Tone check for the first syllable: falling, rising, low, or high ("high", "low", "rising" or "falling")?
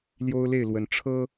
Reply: high